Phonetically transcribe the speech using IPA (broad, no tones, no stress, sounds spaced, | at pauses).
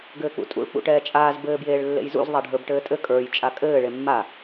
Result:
ɡ ɘː k͡p ṵ tʼ ṵ ɭ k͡p ṵ ʈ ɛː t͡ʃʼ aː z b ɘː b j eː ɭ lː ḛ j z ṵ z ðˤ a ɖʱ ə˞ b ʈ ɘː tʼ ɘ kʼ ə˞ j t͡ʃʼ a kʼ ɘː ɭ e mː a